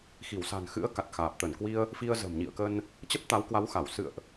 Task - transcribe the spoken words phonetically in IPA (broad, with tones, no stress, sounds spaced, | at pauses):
x i˧˩ w s a̤˨˩ n x ɨ̰˧˥ ə̯ k a˨˩ t̚ x aː˨˩ p̚ t̪ ə˧˩ n k w i˧ ə̯ | f i˧ ə̯ z ə̤˨˩ m ɲ ḭ˧˨ ə̯ k ə˧ n | t͡ɕ ə˦˥ p̚ t̪ a˨˦ w k w a˨˦ w x a˧˩ w s ɨ̰˧˨ ə̯ ʔ